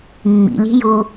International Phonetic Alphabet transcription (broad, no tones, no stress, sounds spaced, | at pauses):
mː ḭ lʲ e̤ j u